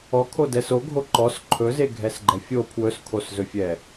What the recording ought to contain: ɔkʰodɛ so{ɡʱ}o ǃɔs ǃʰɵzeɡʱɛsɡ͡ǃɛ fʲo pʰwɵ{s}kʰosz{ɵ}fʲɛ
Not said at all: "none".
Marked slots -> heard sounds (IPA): ɡʱ, s, ɵ

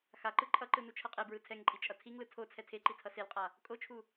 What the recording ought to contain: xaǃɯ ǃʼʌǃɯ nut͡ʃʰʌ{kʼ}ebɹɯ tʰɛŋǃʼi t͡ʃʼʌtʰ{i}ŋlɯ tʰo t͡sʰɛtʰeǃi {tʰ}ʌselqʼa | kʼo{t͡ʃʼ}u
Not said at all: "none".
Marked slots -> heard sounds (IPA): qʼ, i, tʰ, t͡ʃʰ

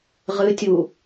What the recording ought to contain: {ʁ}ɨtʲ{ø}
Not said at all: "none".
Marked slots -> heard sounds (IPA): ʁ, u

